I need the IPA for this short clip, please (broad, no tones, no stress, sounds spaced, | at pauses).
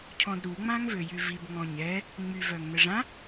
cʰ ɔ̃ d ɾ u ŋ͡m ã ŋ v ø j y v i b ŋ ɔ̃ ɲ ɛ | ŋ͡m y v œ ŋ n ə ʐ ã